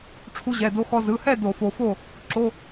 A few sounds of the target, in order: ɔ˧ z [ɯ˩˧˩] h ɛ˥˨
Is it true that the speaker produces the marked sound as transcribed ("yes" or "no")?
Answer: yes